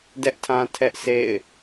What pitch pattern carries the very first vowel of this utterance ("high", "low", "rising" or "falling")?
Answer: high